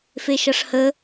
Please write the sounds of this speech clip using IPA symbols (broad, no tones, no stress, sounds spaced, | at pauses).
f e ʃ ʌ ʂ h ə